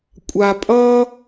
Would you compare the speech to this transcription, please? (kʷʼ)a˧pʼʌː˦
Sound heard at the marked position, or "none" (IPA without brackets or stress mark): kʷʼ